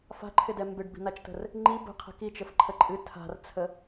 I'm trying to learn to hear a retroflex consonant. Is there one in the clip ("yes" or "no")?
yes